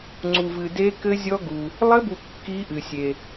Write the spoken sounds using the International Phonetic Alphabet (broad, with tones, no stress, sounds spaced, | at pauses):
ŋ͡ǀ u˨ v ɨ˨ d e˦˥ k ɘ˦˥ zʲ ɔ˦˥ ɡ u˨ | lˠ ɘ˦˥ b u˨ kː i˦˥ ʔ ɨ˨ sʲ e˨